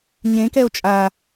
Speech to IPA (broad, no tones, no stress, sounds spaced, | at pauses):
ɲ ẽ k ɛ o̯ t͡ʃʼ a